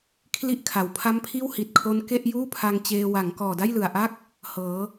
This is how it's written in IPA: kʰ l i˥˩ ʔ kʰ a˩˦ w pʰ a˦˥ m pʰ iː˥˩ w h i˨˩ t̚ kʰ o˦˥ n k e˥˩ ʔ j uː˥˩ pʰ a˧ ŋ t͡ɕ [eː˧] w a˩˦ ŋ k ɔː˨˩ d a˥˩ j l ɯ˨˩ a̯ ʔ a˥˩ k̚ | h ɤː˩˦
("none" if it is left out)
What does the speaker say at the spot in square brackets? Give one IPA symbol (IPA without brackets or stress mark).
eː˧